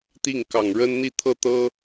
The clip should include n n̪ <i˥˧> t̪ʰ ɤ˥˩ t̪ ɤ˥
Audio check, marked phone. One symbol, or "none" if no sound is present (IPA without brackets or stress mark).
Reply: i˥˧